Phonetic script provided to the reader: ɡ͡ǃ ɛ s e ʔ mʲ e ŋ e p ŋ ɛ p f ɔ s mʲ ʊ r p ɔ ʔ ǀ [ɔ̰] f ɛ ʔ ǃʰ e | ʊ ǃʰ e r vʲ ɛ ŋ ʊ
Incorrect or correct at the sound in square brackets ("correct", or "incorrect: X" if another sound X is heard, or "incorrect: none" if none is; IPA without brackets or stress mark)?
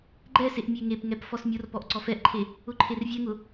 incorrect: ɔ